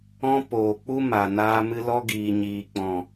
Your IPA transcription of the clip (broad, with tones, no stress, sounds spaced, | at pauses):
ɔ̃˧ p oː˨ k͡p u˦ m a˨ n aː˧ m ɨ˧ l ɔ˧ ɡ iː˨ ɲ iː˨ k͡p ɔ̃˨